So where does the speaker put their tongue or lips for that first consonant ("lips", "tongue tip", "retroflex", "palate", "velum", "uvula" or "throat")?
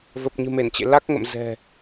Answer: lips